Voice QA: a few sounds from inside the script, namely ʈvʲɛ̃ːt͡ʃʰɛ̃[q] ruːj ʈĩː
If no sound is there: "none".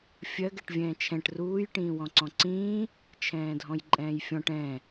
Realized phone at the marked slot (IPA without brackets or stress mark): ʈ